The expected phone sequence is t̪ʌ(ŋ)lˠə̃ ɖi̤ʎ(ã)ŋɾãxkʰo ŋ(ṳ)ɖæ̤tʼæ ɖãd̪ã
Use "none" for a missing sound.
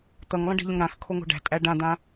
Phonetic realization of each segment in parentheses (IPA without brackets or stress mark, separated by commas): ŋ, ə̃, o̤